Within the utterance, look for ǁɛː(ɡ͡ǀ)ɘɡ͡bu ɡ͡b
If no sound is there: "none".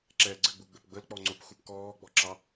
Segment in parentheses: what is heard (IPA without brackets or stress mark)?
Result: ɡ͡ǀ